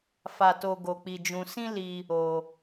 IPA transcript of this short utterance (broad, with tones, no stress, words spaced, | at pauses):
fa˦to˦ ɡo˧k͡pi˧d͡ʒũ˧ sĩ˦li˧ | o˦